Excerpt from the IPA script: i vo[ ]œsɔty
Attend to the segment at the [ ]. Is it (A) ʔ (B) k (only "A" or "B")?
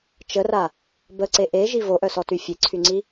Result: A